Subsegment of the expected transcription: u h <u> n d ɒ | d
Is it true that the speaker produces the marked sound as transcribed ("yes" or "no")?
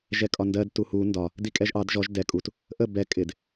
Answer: yes